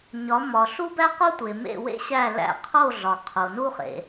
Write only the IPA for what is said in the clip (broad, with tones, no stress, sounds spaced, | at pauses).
ɲ ɒ˩˥ m ɒ˩ ɬ u˥ b æ˥ q o˥ tʷ e˩ m ḛ˥˩ w ḛ˥ ɕ æ˥˩ l æ̰˥˩ qʰ o˥˩ ɮ ɒ˩ qʰ o˩ n u˥ χ ḛ˩